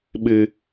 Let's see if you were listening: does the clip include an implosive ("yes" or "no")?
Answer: yes